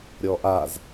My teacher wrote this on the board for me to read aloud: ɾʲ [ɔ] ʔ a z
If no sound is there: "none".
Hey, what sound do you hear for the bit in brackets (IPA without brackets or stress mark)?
ɔ